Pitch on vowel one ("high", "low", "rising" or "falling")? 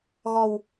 low